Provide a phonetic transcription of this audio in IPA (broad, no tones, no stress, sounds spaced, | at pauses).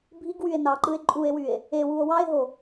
bʱ i ɡ w y e̯ n ɑ ǃ ɯ e̯ ǃʼ u e̯ w y e̯ | e w u o̯ w ɑ e̯ ɦ o